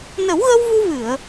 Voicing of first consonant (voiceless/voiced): voiced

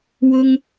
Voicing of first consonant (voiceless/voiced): voiced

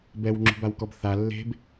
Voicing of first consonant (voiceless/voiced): voiced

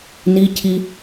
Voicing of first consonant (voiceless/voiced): voiced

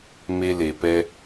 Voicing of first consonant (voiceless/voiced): voiced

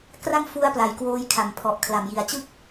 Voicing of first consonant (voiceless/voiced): voiceless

